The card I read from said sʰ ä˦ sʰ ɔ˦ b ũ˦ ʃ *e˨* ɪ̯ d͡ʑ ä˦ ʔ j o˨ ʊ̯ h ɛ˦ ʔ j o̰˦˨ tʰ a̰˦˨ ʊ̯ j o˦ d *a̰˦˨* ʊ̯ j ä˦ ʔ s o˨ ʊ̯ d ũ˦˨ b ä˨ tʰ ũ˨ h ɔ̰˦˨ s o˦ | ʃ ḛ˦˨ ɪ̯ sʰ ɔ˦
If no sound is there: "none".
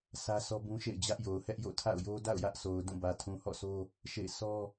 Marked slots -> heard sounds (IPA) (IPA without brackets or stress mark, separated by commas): ḛ˦˨, a̰˦˨